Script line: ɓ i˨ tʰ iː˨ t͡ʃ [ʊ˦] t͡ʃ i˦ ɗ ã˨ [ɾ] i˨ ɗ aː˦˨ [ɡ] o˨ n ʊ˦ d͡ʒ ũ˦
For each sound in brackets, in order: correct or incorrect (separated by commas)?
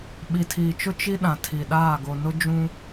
correct, incorrect, correct